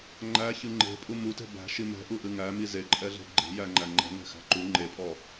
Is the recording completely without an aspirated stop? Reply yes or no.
yes